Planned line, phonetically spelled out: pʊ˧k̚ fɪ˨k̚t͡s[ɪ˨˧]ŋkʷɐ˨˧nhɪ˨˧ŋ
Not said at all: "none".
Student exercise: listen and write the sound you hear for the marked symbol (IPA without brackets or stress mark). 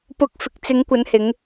ɪ˨˧